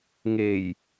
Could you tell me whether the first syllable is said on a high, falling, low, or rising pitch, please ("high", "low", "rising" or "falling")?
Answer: low